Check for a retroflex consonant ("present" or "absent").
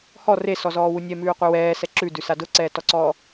absent